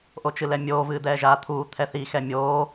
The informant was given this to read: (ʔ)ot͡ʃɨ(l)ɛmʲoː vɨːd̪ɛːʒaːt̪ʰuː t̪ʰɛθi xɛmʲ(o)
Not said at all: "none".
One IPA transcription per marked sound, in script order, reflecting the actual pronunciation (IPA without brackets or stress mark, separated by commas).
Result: ʔ, l, oː